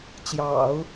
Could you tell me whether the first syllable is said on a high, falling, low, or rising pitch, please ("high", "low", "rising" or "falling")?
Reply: low